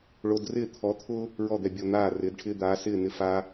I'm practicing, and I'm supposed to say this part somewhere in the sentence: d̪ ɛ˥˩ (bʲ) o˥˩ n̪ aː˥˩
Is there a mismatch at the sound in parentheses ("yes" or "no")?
no